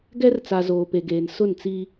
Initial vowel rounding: unrounded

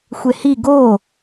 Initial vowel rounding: unrounded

